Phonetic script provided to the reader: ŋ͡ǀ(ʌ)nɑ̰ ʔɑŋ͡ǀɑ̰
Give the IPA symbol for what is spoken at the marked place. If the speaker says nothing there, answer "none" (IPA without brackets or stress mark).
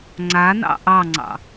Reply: a